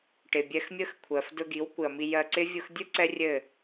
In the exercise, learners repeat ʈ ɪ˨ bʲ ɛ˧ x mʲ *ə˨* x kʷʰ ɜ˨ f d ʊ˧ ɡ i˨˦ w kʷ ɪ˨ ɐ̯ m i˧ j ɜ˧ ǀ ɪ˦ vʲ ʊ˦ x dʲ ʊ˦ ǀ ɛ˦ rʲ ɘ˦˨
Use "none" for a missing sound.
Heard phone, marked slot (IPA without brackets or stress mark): ə˦